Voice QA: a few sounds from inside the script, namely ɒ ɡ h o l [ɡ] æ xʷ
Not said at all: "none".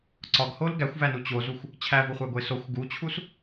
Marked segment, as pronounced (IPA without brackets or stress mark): ɡ